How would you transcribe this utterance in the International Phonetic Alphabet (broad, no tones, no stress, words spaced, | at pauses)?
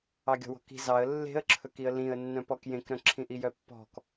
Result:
ɑɡʲɔ̤wɔ̤ki̤ zɑə̯ lːe̤ə̯ǁʰɵkiə̯ lĩə̯ nːœ̃pɔkjẽkɾœ̃ ǁʰĩʔijœpːɔ̤k